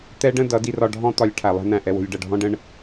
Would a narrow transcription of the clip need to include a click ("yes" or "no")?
no